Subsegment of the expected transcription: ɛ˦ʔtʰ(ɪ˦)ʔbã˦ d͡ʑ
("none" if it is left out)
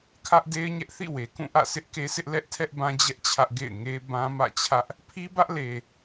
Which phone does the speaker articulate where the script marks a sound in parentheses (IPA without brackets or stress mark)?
ɛ˦